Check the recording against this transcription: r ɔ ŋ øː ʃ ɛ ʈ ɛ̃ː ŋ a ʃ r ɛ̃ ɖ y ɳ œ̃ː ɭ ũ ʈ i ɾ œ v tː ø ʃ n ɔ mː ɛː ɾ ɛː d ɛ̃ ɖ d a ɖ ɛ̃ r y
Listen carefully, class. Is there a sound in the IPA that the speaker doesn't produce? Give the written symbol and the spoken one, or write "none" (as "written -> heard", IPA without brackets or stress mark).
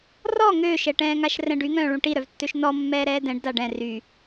ɳ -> ŋ